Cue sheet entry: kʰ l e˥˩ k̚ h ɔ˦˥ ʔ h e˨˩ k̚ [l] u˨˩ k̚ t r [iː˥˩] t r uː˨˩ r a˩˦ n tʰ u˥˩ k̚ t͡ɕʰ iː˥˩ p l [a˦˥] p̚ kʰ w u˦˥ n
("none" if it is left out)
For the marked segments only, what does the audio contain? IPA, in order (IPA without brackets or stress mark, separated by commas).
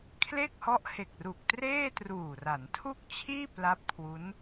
r, eː˥˩, a˦˥